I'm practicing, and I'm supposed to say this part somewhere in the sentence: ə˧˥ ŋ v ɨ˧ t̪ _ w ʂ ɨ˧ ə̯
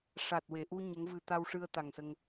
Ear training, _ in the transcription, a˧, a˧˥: a˧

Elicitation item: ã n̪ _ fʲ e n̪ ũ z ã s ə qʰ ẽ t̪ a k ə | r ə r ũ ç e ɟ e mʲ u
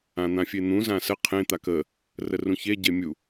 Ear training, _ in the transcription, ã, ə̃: ã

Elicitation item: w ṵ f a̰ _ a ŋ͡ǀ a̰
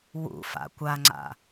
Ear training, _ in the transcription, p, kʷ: kʷ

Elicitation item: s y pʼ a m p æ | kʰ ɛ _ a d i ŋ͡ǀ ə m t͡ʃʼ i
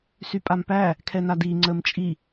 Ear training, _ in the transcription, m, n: n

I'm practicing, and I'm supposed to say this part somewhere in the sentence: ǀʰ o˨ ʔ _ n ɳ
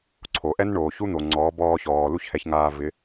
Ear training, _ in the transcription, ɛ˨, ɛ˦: ɛ˦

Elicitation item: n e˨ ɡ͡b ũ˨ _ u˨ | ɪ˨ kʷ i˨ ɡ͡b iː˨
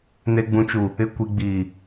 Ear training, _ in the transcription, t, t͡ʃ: t͡ʃ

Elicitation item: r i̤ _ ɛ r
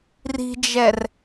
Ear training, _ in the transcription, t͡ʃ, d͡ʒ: d͡ʒ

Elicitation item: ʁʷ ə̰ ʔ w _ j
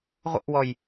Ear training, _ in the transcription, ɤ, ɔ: ɔ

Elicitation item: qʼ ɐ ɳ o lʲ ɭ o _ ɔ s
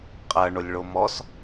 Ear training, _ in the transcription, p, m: m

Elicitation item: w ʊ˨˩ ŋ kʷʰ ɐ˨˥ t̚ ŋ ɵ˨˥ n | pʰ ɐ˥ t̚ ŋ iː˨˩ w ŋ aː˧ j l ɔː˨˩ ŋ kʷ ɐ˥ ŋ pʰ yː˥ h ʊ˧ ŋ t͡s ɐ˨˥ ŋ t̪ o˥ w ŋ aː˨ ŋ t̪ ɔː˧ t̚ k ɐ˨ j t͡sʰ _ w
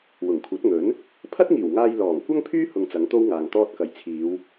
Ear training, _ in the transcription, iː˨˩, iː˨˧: iː˨˧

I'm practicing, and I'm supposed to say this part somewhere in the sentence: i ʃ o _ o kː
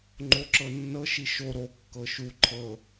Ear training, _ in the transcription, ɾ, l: ɾ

